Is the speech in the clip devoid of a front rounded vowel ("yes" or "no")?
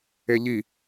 yes